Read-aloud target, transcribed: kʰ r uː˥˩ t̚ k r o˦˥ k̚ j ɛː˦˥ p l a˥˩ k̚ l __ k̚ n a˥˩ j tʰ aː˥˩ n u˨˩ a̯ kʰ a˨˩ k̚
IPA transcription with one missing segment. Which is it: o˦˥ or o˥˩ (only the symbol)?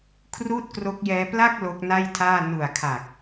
o˦˥